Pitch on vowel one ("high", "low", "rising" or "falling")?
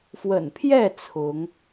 low